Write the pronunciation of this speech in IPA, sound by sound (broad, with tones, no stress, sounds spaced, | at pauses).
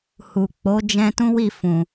h u˨ k͡p o˨˦ d͡ʒ ɛ̃˧ t ũ˦ w i˦˨ f ũ˨